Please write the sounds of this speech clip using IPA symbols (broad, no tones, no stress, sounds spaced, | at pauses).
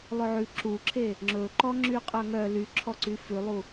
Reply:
lˠ ɵ ʕ ʉ ǁ u ǁʰ e | ŋ͡ǁ ɵ ǃ ɔ ŋ͡ǁ y qʼ œ ŋ œ l y ǁʰ ɔ ǀ y f ʉ lˠ u